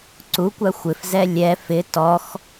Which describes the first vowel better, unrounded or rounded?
rounded